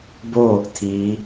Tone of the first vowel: falling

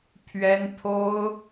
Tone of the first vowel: high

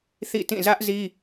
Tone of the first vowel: falling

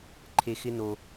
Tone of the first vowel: low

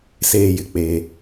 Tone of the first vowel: high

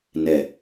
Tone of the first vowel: low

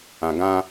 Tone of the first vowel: low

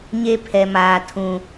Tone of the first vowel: high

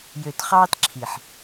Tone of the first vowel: low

